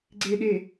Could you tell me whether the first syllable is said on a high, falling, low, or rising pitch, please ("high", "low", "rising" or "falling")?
low